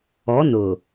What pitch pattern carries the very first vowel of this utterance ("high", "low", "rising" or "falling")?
rising